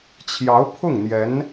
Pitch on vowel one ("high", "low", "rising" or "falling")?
rising